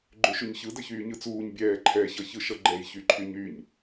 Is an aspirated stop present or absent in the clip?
present